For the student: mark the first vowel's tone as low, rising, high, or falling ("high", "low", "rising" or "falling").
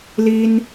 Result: high